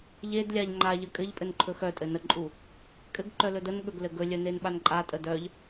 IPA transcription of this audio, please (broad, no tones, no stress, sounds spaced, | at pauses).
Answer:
ʎ e d lʲ a ʎ ŋ͡ǃ a ʎ ə kʼ ɘ ʎ pʼ ɘ n ǃʰ ɵ x œ tʼ ɘ n ə ǃʼ u | kʼ ɘ ɡ ǃ œ l ɵ d ə n ɠ ɵ ɡ l ɘ ɡ ɵ lʲ œ n e n ɓ a n ǃʼ a tʼ ə d œ ʎ